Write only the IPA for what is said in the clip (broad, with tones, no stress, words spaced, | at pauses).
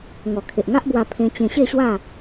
ŋɔ˨˩kʰe˨ʔŋa˦ʔbwa˧ pʰẽ˧t͡ɕẽ˧ ɕe˥˧ɕwa˥˧